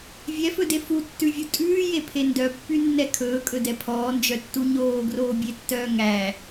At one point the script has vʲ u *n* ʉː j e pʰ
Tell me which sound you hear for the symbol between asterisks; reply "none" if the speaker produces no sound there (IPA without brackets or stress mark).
tʼ